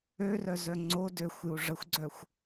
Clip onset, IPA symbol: ø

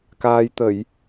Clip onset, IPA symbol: k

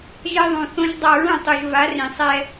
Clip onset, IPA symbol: ʒ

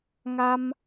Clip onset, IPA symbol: ŋ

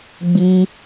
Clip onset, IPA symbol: ɡ͡b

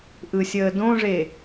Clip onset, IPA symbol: ʔ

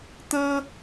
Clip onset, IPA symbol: t̪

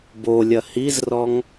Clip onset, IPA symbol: b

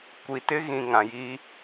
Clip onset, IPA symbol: kʷ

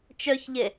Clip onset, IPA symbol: t͡ʃ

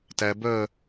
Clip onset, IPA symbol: t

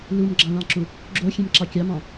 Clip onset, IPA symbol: l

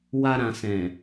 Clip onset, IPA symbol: w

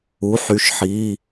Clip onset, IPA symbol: u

